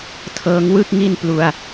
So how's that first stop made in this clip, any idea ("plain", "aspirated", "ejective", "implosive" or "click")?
aspirated